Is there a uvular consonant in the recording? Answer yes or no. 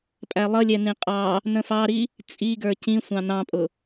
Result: yes